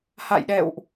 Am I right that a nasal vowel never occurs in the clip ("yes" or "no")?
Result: yes